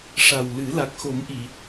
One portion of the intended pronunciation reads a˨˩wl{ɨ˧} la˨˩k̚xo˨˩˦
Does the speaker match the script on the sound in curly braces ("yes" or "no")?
no